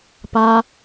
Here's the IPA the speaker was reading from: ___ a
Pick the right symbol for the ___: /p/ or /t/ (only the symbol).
p